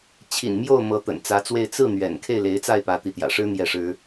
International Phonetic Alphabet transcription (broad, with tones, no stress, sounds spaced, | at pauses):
t͡ɕʰ ḭ˨˩ n m j o˥˩ ʊ̯ m ɤ˧˥ t̪ ə̰˨˩ n t͡s ä˧˥ t͡s w e˥˧ ɪ̯ t͡s ɹ̩˥˩ n̪ ɥ ɛ̰˨˩ n kʰ e˥˩ ɪ̯ l e˧˥ ɪ̯ t͡s a˥˩ ɪ̯ p ä˧˥ t̪ i˧˥ t̪ j ä̰˨˩ ʂ ɻ̩˥ n̪ j ɛ˥˩ ʂ ɻ̩˥